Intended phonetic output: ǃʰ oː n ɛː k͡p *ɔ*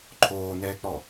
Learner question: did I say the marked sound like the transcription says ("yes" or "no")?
yes